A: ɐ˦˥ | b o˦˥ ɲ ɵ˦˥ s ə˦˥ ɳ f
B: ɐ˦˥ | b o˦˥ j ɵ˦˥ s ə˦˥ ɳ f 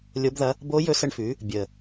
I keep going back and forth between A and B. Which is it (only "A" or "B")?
B